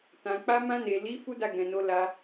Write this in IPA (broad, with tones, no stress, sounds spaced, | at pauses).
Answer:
t ã˨ k͡p a˧ m ã˧ n e˨ l i˨˦ f u˦ d a˦˨ ɡ ɛ̃˨ n o˨˦ l a˧